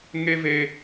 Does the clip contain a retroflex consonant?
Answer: no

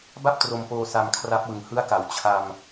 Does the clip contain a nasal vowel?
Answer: no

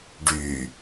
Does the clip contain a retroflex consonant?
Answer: yes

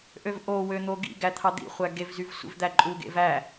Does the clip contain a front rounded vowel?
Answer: yes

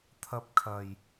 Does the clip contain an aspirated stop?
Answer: yes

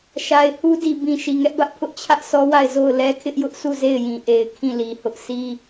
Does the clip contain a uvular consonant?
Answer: no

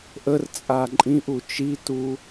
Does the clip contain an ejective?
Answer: yes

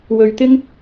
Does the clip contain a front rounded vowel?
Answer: no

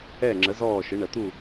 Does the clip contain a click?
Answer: yes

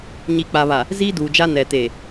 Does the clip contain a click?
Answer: no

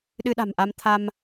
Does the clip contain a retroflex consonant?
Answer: no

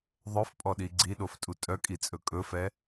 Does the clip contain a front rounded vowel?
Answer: yes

